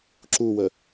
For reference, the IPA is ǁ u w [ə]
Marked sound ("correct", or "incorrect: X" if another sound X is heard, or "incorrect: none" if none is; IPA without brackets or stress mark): correct